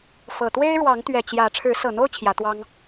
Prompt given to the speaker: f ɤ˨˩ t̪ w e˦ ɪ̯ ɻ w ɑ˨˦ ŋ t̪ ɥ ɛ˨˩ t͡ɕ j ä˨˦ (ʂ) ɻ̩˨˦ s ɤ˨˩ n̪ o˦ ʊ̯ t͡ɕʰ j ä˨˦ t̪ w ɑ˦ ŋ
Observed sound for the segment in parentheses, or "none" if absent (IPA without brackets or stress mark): ʈ͡ʂʰ